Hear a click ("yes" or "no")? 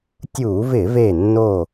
no